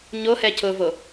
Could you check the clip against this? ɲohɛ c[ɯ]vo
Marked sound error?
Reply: yes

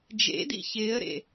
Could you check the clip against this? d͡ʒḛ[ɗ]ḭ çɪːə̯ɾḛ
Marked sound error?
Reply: yes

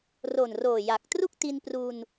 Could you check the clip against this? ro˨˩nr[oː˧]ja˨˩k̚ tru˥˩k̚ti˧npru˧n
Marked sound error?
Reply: yes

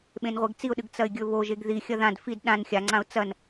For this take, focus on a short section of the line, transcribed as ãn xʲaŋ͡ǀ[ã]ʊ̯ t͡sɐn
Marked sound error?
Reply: no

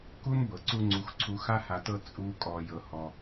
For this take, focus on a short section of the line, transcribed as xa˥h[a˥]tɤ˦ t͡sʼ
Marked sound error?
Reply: yes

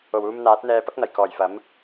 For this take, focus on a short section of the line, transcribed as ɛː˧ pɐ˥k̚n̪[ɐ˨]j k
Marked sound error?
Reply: yes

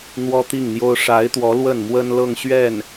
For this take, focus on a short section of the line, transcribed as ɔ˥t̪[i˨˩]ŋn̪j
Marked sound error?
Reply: yes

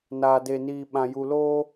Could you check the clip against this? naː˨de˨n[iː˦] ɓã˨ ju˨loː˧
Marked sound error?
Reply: yes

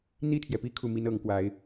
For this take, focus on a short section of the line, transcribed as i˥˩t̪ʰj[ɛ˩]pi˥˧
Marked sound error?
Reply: no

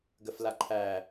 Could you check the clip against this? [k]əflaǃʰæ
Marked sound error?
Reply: yes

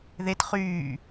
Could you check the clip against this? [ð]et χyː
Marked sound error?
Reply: no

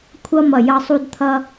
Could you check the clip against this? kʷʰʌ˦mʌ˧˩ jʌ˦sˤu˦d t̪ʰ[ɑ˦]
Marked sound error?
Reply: yes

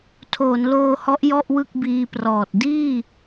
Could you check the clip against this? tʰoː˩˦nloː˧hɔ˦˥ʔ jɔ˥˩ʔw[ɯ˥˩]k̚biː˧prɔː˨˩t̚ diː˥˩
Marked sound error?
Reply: no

